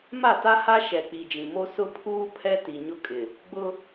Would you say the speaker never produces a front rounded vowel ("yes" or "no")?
yes